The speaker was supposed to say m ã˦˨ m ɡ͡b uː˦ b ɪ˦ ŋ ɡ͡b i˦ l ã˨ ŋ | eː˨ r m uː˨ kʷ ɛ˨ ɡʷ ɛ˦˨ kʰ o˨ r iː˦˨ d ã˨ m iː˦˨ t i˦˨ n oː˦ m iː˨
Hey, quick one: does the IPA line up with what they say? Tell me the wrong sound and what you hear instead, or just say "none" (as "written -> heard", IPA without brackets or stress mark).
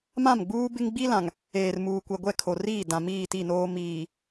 none